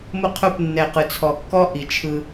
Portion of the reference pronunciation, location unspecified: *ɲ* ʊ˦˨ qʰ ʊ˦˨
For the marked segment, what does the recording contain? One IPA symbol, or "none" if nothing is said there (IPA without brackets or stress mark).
m